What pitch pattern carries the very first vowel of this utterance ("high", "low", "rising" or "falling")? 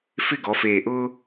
falling